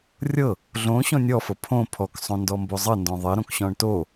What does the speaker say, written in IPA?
rʲɤ | ɮõɕɔ̃ nʲɔfɤ pʰõ pʰɔksˤõndɔmbo zˤɤndɔ̃ ðˤɘɾõkɕɔ̃ɳ to

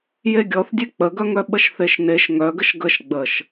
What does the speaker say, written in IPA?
jeɡʲɔθdʲe k͡pəɡœŋœ ɓəʃθeʃneʃ ŋœɡəʃ ɡəʃ ɡ͡bəʃ

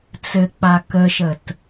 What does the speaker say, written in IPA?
t͡sɘk͡pa kəʃət

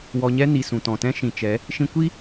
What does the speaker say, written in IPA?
wɔ˧ɲɛ˦ ni˨ sũ˨tɔ̃˨tɛ̃˦ ʃĩ˨t͡ʃɛ˨˦ | ʃĩ˧kʷi˦

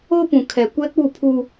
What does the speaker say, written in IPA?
o˦pũ˨ kʰɛ˨ kʷɛ˦k͡pu˦˨pʰu˦

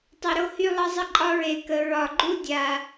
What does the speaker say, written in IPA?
tˤɵ˨ɾo˦hy˦lˠʌ˦ zˤə˦ǃʼɒ˦ ɹe˨kə˨ ɹɒ˨ɡ͡ǃu˦dʲa˨

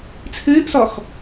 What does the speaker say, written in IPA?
t͡sʰɨːʔsɔx

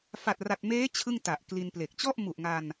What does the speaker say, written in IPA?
fa˨˩t̚ra˨˩t̚meː˦˥ t͡ɕʰɯ˥˩ŋta˨˩ʔkli˧nple˨˩k̚ t͡ɕɔ˥˩ʔmu˨˩ʔŋa˧n

